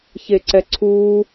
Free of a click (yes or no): no